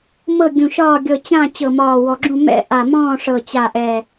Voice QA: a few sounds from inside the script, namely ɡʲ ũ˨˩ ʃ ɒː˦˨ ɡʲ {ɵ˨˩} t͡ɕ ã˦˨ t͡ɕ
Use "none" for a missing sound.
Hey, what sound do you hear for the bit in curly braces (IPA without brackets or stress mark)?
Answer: ɤ˨˩